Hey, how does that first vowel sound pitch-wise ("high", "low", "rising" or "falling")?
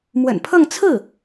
low